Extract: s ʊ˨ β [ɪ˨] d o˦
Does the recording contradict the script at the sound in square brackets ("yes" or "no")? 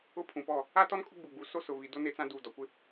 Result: yes